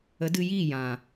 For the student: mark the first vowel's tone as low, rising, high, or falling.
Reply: rising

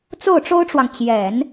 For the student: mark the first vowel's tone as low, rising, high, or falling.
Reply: falling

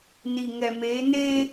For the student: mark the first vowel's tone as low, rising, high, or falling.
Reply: low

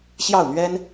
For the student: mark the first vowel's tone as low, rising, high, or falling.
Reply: falling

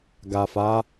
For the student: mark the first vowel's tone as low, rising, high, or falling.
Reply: low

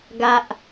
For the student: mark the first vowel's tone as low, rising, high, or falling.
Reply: low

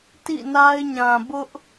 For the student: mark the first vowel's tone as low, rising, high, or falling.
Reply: falling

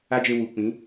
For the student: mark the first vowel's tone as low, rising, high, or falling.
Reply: high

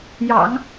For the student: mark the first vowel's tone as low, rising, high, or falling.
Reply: low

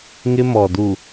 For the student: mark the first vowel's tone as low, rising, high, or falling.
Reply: high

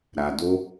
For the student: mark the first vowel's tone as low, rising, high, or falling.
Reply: low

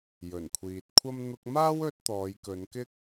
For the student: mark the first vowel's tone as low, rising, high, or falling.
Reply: low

